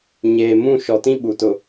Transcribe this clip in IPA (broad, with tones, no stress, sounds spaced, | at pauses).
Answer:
ɲ eː˨ m ũ˦˨ ʃ ɔ˨ t ĩ˦ ɓ u˨ t ʊ˨